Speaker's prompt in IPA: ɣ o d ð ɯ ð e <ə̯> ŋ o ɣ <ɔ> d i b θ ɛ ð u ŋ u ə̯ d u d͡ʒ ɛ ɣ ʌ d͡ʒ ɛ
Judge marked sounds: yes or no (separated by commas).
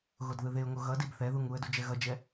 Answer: no, no